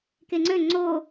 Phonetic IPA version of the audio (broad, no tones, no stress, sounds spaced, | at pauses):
k e ŋ͡ǀ ø ŋ͡ǀ o